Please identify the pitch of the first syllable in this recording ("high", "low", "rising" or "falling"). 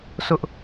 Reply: high